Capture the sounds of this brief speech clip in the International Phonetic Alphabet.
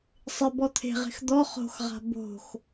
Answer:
sˤ ɪ b ɔ t̪ʰ e̤ ʁ e̤ x d̪ ɔ χ o̤ x ʁ a̤ b o̤ x

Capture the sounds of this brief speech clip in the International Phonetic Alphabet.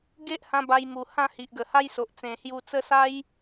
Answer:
ɡ e˦ ʔ h ã˧ b a˧ j m u˨˩ h ã˥˧ h i˨ ʔ ɡ ə˨˩ h a˦ j s o˨ ʔ t͡s ẽ˨˩ h j u˧ t͡s ə˦ s a˦ j

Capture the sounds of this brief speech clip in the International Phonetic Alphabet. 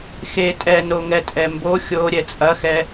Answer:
x e tʼ ɛ n o ŋ ɛ tʼ ɛ m b o xʲ o ɾʲ ɛ t͡sʼ ɐ x ɛ

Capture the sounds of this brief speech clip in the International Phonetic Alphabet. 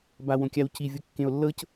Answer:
b a w õ kʲ a w c i vʲ o kː ẽ o̯ lː ɤ c

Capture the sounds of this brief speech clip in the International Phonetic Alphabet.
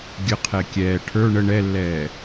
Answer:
ɡʲ ə qʰ ɛ kʲ ɛː ʈʰ ə˞ ɳ ə ɳ ɛ lː ɛː

